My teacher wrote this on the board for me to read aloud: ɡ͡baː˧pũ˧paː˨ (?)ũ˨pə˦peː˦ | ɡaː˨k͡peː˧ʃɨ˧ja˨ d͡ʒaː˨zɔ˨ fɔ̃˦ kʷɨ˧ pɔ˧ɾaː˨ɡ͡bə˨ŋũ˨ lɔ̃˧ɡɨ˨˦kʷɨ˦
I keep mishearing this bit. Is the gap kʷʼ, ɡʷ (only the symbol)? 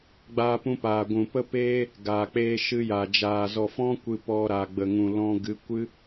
ɡʷ